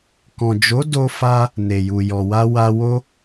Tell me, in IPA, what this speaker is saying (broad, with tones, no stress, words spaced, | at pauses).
kɔ̃˨d͡ʒo˨˦ do˦fa˦ | ne˨ju˨ jɔ˨wa˧wa˧ wo˧